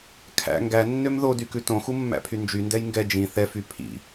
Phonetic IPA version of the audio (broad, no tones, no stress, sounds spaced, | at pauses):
kʰ æ̰ ŋ ɡ æ nː ø m ð o d y k ʉ t õ x u mː æ̰ pʰ y n d͡ʒ y n d ɛ j ŋ ɡ ɛ d͡ʒ ĩ θ ɛ f y pʰ ḭ